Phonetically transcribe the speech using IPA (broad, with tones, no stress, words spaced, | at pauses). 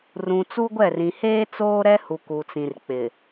rũ˨t͡su˦ɡʷɛ˦˨rĩ˨ heː˦ t͡soː˦ɾɛ˦hu˨ ku˨t͡sĩ˨rk͡pɪ˨